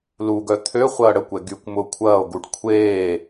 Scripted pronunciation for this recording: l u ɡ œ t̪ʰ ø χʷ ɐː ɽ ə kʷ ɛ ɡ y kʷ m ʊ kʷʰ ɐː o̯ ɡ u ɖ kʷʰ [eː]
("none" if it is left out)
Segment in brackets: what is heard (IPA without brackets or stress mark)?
eː